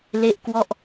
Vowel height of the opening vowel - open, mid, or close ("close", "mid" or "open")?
mid